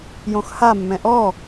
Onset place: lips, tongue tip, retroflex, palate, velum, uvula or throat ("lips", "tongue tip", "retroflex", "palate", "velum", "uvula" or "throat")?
palate